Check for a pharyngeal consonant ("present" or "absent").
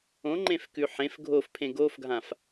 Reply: present